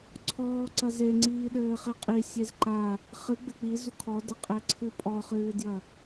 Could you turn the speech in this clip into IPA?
ǀʰɔːǀɐ zeŋ͡ǀiː ɗɘːχɛqʼi sʲezǃa | χɨ ɡ͡bɘk͡pi zukʰɔdɘqʼɛ ǀʰɨpʼɔχɨːdjɐ

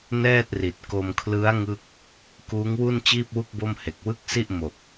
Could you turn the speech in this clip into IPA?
nɛː˥˩t̚ri˨˩t̚ ko˧mkʰlɯ˦˥a̯ ŋɯ˥˩k̚ | kuː˦˥ŋwu˥˩n t͡ɕiː˥˩p̚wu˥˩k̚bo˥˩mhe˨˩k̚ wɯ˥˩k̚si˥˩ʔ mo˨˩k̚

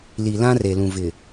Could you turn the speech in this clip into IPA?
li˨ lã˦re˨lũ˨ vɪ˨

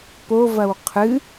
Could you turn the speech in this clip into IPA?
povɐw qʰɨ

